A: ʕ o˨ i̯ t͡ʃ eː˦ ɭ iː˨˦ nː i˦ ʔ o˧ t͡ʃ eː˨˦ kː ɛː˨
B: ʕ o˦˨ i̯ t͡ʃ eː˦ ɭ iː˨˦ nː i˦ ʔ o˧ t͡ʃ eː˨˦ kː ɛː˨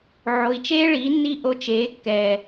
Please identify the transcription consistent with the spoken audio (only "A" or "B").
A